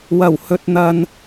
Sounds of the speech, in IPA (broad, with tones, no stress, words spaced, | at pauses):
wɐ˨˩whɵ˨t̚n̪ɐ˨n